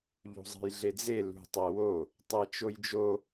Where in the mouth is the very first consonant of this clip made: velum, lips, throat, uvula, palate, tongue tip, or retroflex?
palate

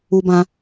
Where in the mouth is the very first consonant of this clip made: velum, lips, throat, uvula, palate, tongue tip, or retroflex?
lips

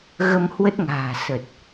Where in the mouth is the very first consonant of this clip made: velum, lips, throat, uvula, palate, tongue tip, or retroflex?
velum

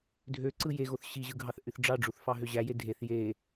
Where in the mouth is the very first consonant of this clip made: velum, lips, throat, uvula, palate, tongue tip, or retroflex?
tongue tip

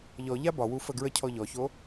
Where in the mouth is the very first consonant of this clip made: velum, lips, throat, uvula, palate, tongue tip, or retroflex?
palate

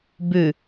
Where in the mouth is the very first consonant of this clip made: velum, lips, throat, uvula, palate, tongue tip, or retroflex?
lips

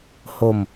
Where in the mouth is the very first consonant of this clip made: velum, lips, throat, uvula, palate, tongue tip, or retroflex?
throat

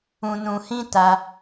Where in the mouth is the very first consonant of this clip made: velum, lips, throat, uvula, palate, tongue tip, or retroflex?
tongue tip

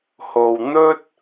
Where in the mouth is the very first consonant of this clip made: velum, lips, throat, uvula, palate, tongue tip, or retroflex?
throat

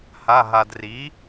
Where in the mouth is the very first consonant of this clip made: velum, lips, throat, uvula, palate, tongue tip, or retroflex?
throat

